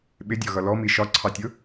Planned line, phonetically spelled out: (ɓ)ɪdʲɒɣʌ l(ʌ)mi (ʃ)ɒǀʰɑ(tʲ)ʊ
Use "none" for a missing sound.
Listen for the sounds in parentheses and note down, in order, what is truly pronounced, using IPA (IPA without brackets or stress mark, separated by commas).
ɓ, ɔ, ʃ, tʲ